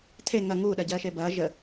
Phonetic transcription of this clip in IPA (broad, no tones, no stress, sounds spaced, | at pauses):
tʰ e ŋ ɐ ŋ uː ɗ ɜ ɟ ɜː ʃ e b ɐː ʒ ə